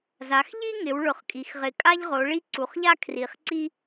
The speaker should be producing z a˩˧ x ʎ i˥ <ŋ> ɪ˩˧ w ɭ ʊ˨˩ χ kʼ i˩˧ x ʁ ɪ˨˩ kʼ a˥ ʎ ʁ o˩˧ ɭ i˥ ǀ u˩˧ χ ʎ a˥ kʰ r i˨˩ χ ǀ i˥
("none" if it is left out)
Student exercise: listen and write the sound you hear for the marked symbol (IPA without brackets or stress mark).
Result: ŋ